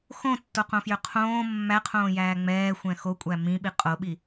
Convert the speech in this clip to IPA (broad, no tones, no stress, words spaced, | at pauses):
xõtːoqõfjø qʰõː mːæqʰõːjæː ŋ͡mɛːxʷɛ̃ xokʷʼæ mĩɓi qʼoɓi